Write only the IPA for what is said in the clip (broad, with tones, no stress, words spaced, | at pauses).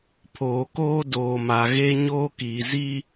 pʰoː˨koː˦doː˨ma˨ ɣe˦ɲoː˦kiː˨ ziː˦